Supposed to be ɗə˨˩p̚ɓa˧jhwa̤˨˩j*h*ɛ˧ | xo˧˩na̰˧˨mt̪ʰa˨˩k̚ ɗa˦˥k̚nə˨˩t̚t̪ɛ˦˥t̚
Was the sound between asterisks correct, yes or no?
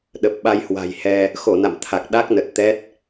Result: yes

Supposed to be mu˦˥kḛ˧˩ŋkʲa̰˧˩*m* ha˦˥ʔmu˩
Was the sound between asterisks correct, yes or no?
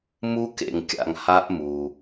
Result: no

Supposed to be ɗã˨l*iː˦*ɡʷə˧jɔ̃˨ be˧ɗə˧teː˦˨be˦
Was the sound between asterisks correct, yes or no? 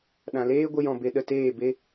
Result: no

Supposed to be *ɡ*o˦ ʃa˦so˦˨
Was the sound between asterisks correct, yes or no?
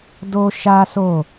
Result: no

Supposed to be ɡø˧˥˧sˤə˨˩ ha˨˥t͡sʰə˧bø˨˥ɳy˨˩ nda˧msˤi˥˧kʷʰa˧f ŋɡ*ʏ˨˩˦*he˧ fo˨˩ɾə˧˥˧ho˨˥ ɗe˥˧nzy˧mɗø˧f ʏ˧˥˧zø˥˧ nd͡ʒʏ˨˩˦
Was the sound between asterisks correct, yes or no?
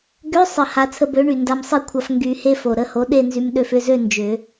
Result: no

